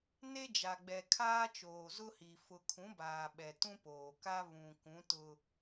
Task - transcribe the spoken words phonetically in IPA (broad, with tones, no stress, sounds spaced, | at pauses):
n e˦ d͡ʒ a˨ ɡ͡b ɛ˨ kʰ aː˦ t͡ʃ oː˨ z ʊ˦ h i˨ f ʊ˨ kʰ ũ˨˦ b aː˨ ɓ ɛ˨ t ũ˦ p oː˨ k a˦ β ũ˨ k ũ˨˦ t ʊ˦